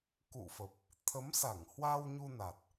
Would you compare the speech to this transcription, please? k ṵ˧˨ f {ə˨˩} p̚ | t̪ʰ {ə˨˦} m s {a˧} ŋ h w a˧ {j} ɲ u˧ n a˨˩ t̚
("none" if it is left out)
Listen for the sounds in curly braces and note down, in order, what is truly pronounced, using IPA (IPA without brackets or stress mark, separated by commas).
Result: ə˨˩, ə˨˦, a˧˩, w